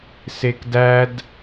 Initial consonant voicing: voiceless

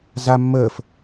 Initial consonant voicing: voiced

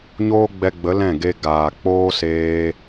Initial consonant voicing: voiced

